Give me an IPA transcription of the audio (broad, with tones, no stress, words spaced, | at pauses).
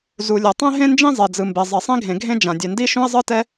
zu˩lʲɤ˩ tˤɛ̃˥ɦẽ˥nd͡ʒĩ˥ zˤe˩d͡zɯ˩mbe˩zˤi˩ sˤĩ˥ɡʱẽ˩ɡʱẽ˥ d͡ʒã˩dʲɛ˩ndi˥ ʃũ˥ɪ̯zˤɯ˥tɛ˥